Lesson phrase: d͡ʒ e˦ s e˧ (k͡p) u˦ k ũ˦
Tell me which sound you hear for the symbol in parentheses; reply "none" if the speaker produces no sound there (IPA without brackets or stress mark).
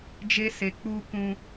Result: k͡p